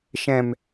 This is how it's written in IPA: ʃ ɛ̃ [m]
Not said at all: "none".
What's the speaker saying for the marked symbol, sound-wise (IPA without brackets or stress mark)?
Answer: m